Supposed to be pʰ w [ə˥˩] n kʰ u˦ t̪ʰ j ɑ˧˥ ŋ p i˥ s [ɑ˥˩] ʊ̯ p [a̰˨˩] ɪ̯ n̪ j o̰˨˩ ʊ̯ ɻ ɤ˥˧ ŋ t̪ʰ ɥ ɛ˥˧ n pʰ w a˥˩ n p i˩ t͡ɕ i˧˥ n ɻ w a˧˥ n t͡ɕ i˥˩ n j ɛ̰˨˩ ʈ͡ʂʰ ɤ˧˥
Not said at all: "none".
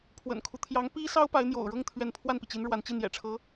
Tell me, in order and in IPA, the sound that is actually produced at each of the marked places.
ə̰˨˩, ɑ˥, a˧˥

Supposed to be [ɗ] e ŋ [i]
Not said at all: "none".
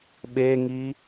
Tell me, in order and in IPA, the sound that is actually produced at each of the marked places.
ɓ, i

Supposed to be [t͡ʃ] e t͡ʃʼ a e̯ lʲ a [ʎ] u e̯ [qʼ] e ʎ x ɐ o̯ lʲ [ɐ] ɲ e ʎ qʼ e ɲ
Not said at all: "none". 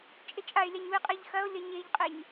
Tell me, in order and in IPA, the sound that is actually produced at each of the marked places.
t͡ʃʼ, ɲ, qʼ, ɐ

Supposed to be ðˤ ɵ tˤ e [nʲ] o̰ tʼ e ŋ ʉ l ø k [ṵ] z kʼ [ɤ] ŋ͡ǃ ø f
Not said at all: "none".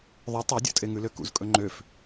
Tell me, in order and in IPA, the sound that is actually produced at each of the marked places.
dʲ, ṵ, ɵ

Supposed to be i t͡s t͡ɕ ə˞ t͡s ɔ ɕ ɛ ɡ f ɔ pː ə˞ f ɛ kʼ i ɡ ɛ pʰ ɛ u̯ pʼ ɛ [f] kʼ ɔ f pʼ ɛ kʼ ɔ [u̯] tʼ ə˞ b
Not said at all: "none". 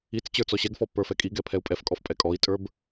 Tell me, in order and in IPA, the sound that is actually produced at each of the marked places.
f, i̯

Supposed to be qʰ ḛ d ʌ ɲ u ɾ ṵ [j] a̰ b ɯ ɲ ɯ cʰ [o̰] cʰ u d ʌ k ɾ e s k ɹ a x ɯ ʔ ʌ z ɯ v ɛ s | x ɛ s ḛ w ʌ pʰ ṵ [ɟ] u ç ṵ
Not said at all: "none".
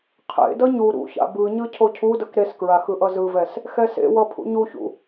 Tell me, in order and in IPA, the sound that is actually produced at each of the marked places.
ç, o, ɲ

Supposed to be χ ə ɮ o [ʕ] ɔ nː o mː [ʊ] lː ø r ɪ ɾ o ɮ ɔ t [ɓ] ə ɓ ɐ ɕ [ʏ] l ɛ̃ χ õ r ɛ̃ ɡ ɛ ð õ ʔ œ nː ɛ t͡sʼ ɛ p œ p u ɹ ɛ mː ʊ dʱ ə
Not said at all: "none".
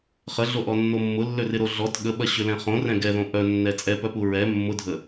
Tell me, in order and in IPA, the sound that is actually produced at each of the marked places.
ʔ, ʊ, ɠ, ʏ

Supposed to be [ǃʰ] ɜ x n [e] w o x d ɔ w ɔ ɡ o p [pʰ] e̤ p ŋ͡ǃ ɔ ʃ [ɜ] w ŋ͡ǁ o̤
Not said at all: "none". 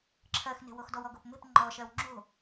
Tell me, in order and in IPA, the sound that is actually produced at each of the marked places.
ǁʰ, e̤, m, ɜ

